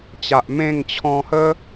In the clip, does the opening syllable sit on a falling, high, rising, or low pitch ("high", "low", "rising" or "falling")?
low